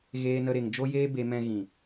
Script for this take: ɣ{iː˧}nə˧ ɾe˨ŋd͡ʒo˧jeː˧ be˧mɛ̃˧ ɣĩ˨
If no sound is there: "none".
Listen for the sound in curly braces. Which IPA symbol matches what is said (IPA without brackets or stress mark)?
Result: eː˧